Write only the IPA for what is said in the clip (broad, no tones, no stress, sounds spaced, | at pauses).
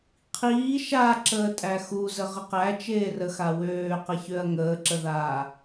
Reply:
qʰ iː ʃ a ǁ əː tʼ æ x u z ə ʁ ə q æ t͡ʃ eː r ə x a w øː q ə ç ø ɐ̯ ŋ əː ǁ ə ð aː